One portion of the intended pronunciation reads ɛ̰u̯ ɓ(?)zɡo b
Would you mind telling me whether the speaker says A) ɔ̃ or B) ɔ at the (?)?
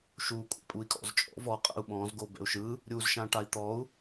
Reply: A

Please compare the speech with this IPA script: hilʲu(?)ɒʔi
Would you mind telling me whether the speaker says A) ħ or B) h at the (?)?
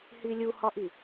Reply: B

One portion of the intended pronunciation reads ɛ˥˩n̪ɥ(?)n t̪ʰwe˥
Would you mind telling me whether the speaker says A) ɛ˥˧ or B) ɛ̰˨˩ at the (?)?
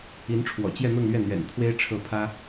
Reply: B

